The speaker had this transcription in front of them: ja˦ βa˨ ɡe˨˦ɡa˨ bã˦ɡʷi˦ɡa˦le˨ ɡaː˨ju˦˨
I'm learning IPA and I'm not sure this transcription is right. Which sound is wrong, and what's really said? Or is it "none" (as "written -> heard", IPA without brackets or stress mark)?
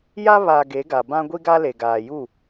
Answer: none